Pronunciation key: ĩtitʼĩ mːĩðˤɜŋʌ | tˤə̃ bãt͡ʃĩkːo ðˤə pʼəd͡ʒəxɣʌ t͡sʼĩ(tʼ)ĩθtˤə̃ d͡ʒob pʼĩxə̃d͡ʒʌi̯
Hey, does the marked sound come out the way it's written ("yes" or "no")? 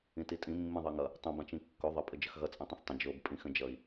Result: no